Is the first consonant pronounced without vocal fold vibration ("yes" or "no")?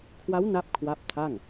yes